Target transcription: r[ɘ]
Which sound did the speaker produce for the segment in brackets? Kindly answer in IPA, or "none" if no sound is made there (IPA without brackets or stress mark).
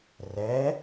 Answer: ɛ